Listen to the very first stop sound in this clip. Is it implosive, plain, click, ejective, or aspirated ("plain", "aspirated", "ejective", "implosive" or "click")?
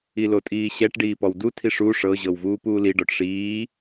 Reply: ejective